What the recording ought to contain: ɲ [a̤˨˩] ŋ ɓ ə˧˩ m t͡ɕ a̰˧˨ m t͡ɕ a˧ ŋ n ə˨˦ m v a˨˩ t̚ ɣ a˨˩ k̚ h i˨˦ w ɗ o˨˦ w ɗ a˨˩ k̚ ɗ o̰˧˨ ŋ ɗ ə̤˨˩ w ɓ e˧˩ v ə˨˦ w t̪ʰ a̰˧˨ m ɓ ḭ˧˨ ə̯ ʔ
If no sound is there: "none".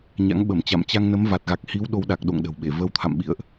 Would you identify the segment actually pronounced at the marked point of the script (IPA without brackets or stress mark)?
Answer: a̰˧˥